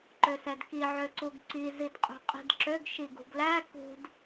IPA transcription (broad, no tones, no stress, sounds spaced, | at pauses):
ǃ ø s ɛ d k i ʕ ø ǀ u ɡ ǀ i z i d qʼ ṳ qʼ i̤ d ǁ ø ɡ ʃ i ɡ ṳ ɡ l æ k ṳ d